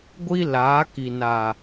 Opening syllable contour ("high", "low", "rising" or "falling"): high